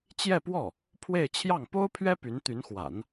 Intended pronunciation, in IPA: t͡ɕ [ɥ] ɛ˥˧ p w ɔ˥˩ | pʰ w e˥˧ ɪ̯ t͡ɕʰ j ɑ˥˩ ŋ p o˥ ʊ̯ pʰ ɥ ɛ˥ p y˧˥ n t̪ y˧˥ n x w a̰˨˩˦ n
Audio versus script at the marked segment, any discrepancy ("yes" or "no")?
yes